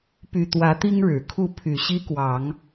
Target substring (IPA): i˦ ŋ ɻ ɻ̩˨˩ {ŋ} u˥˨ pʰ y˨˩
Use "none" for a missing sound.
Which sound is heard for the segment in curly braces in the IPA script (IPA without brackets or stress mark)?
kʰ